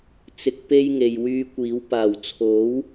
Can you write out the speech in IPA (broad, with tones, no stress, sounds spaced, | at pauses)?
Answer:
t͡s ɪ˨˥ k̚ p e˧ j ŋ e˨ j w yː˧ kʷ iː˨˥ w p aː˨˩ w t͡sʰ o˨˥ w